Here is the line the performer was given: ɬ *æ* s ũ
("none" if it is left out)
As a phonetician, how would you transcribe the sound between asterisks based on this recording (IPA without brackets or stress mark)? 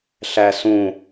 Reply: æ